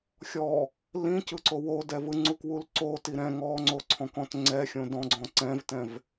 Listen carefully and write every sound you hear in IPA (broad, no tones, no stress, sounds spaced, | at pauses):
xʲ ɔ | l ĩ c ɯ ǀ o w o d ɛ v ɯ ŋ͡ǀ u k w u l ǀ o t i ɾ ɛ̃ ŋ ɔ ŋ͡ǀ o ǀʰ ɔ̃ k ɔ̃ t ŋ͡ǀ ɛ xʲ õ d ɔ̃ ɡ͡ǀ ɔ̃ ǀ ɛ̃ v t ɛ̃ v